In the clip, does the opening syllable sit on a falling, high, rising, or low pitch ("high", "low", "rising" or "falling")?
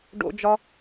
high